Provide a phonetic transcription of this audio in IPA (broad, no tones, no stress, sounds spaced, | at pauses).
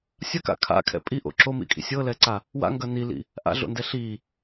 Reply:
sʲ ɐ k a̰ kʰ a̰ kʰ ɛ̰ pʼ i ʔ o̰ ǁ o m ḭ kʼ ḭ sʲ ɤ l ɛ ǀ a | w a̰ ŋ ɡ ɐ n i l ḭ | ʔ a̰ ɮ o̰ n d ɛ ɬ i